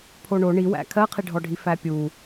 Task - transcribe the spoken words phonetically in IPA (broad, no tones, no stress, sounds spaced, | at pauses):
pʰ o ɳ o ɳ i w æ̰ kʰ ɜ qʰ i ɖʱ ɔ ɖʱ i f æ pʲ u